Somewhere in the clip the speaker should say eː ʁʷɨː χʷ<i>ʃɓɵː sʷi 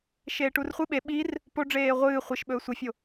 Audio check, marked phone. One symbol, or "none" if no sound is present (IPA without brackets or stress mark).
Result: i